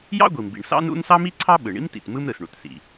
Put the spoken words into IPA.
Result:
j ɑ̰˥ ɡʷ i˩ m b ḭ˩ ɳ s ɑ̰˥ n ṵ˥ n s ɑ˥ m i˥ ǀʰ ɑ˥ ɓ ɯ˩ ɳ ḭ˥ m t ḭ˩ t m ɯ˥ m ɾ ɯ˩ s ɳ u˩ t s ḭ˩

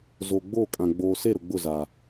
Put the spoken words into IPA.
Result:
z o˨ ɡ͡b oː˦˨ kʼ ã˨ ɡ͡b oː˨ s e˦˨ ɾ ʊ˨ ɡ͡b ʊ˦˨ z a˨

